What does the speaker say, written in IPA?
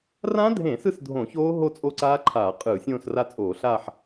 r ã˦˥ dʱ ẽ˧˩˧ s ɯ˥˧ s dʱ õ˧˩˧ ç oː˦˥ ɦ o˥˧ t͡sʼ o˦˥ ǀ aː˦˥ ǃʰ aː˧˩˧ qʼ ɯː˧˩˧ sʲ õː˥˧ s r a˥˧ t͡sʼ oː˧˩˧ ɬ aː˥˧ ħ

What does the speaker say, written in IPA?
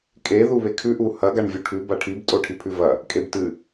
kʼ e ð u β e kʰ ʉ ʔ u h ɐ ɡ a ɳ vʲ u ʈʰ ʉ b a ʈʰ i b tʼ o ʈʰ i pʰ ʉ v ɐ | kʼ e b t ɨ

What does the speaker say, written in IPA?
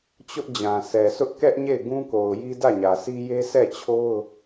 t͡ɕ ʊ˦ ʔ d͡ʑ ã˨ s ɛ˨ sʰ ʊ˦ ʔ k ɛ˦ ʔ ɲ e˦˨ ɪ̯ ɡ ũ˦ k o˨ ʊ̯ j i˦ d ä˦˨ ɲ ä˨ sʰ i˦ j e˦ sʰ ɛ˦˨ t͡ɕʰ o˦ ʊ̯

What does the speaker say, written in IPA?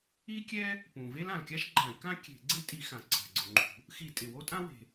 i˥ kʲ ɛ˥ | p ũ˩ v e˥ l ã˩ l kʲ a˥ ʃ ɡ͡ǃ ã˧˩˧ i̯ k ã˥ kʲ e̤˧˩˧ ɡ͡ǀ e˥ tʼ i˧˩˧ x ã˩ ǀʰ a̤˩ ɡ͡ǀ ʊ˩ ŋ͡ǃ ṳ˧˩˧ | x i˧˩˧ tʼ ɪ˩ w o˥ tʼ ã˥ w e̤˩

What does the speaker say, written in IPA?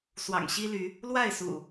s w ɑ̰˨˩ ŋ ɕ i˦ l y˨˦ | l w a˥˨ ɪ̯ s ṵ˨˩

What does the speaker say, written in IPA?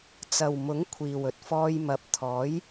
t͡s ɐ˨ w m ʊ˨˥ ŋ kʷʰ iː˨ w ɵ˨ t̚ f ɔː˧ j m ɐ˨˥ p̚ t̪ʰ ɔː˨˥ j

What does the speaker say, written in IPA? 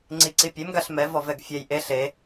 ŋ͡ǀ i ǀ i pʲ e m ɡ a ɬ m ɛ v ɔ v ɛ ɡ fʲ ɛ j ʔ e ɬ e

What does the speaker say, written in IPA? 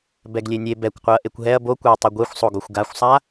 b ɛ ɡ lʲ e nʲ e b ɛ kʷ qʷ ɯ ɐ̯ ʔ e kʷ ɦ ɛ ɐ̯ b o kʷ ɛ ɐ̯ tˤ ɯ ɡʷ e xʷ sˤ o ɡ o xʷ ɡ a xʷ sˤ a

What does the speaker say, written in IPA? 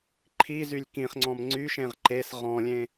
ǃʰ i z y lʲ k ĩ χ ŋ͡ǀ ɔ̃ m ŋ͡ǀ y ʃ ẽ ʁ ǃ e s ʁ ɔ̃ lʲ ẽ

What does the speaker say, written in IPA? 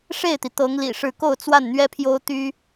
ʂ e˥˩ ɪ̯ t̪ i˩ t̪ ɤ˧˥ ŋ l ḭ˨˩ ʂ ɻ̩˥˧ k o˥˧ ʊ̯ t͡s w a˥˩ n n̪ ɥ ɛ˥ pʰ j o˥ ʊ̯ t̪ y˥

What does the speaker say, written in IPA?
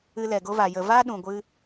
ɨ˧ l ɛ˨ ɡ o˧ v a˨ j ə˨ v a˦ ɗ ũ˨ ɡʷ ɨ˧

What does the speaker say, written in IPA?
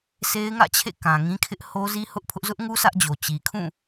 s e˦ ɪ̯ ŋ ä̰˦˨ t͡ɕʰ ḛ˦˨ k ã˨ ŋ ĩ˦ kʰ ɪ˦ ʔ h o˦ z i˦ h ʊ˦ ʔ pʰ ʊ˦ ʔ z ʊ˦ ʔ ŋ u˦ sʰ ä˦ ʔ d͡ʑ o˨ t͡ɕ i˨ kʰ ũ˦˨

